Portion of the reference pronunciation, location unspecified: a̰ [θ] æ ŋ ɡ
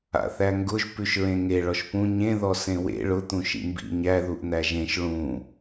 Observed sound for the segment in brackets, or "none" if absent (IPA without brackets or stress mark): θ